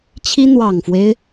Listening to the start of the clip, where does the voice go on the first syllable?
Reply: high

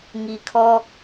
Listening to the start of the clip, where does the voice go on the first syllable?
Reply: low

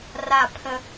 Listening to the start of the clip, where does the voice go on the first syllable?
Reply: falling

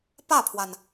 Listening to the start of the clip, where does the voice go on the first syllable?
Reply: falling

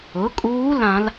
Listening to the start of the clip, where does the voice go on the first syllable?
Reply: rising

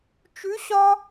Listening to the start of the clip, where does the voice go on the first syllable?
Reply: rising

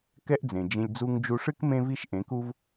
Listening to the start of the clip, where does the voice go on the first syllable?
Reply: high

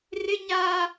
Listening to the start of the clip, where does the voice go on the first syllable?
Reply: high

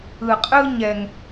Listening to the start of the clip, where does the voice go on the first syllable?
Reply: low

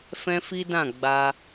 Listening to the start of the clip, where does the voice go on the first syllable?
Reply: high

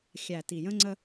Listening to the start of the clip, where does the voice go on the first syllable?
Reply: low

